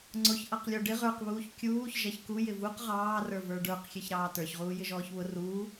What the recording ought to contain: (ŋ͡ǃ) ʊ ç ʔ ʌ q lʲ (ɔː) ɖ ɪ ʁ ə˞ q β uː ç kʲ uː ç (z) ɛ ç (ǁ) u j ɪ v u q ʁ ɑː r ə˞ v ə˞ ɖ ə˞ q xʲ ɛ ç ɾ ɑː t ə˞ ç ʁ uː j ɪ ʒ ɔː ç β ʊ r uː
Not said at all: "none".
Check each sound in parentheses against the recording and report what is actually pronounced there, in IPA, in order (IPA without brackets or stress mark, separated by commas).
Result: ŋ͡ǀ, ɔ, ʒ, k